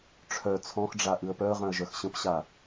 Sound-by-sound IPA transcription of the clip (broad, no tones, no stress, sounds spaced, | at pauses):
ʈ͡ʂʰ œ t͡sʰ ɔ̃ x ɖ͡ʐ a ʔ ɨ ə̯ p œ ə̯ ʁ œ̃ ə̯ ʒ œ x ɕ ə̃ p ɕ a